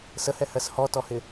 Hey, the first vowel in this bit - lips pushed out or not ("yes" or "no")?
no